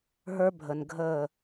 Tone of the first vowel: high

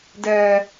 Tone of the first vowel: low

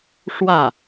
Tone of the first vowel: falling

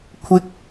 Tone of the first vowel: high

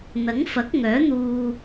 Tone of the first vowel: rising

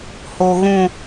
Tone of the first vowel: high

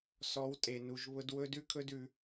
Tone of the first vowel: rising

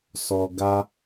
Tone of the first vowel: low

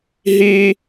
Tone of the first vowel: high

